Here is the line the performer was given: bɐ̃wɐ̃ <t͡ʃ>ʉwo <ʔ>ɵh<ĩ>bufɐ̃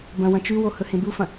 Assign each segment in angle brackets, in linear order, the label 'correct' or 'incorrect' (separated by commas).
correct, incorrect, incorrect